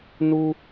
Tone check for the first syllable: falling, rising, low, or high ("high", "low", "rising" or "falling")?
high